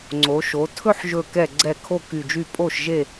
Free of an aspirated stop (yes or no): no